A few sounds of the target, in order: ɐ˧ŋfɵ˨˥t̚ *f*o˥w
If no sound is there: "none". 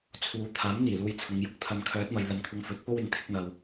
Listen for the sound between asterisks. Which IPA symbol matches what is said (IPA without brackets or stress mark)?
p